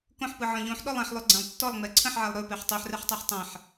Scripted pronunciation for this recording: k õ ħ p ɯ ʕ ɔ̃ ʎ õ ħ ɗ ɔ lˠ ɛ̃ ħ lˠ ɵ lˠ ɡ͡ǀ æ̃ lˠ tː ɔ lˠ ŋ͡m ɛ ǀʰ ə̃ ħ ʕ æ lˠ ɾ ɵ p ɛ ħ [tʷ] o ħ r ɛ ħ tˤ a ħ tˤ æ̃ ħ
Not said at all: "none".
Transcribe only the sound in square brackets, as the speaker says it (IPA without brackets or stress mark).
tˤ